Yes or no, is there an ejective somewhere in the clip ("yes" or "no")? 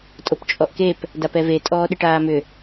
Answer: yes